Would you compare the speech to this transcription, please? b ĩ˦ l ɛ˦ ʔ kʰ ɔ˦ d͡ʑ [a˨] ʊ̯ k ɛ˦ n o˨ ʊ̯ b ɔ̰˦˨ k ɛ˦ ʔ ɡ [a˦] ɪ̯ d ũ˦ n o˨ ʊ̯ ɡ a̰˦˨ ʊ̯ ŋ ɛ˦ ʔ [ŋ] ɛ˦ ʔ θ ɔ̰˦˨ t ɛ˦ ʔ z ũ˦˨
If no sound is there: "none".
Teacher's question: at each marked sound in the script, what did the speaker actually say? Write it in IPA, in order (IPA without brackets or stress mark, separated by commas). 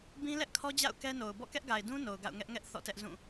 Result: a̰˦˨, a˨, ŋ